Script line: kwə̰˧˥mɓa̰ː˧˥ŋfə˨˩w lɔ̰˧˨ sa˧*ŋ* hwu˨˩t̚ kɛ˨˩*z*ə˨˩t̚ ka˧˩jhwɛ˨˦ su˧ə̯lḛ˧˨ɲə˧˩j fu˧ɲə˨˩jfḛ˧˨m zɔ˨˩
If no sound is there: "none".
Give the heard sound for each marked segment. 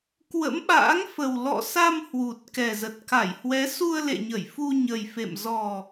m, z

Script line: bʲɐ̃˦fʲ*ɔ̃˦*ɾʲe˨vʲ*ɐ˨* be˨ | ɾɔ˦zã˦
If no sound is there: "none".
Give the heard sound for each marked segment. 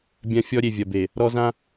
ɔ˦, ɐ˨

